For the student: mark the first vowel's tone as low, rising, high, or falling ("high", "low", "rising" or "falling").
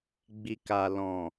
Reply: low